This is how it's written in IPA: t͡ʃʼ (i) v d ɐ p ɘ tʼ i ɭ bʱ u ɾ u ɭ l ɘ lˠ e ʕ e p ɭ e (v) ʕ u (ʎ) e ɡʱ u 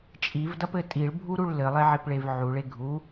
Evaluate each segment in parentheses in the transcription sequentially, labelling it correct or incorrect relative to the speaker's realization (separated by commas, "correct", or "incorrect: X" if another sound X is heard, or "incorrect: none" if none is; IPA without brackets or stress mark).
correct, correct, incorrect: ɭ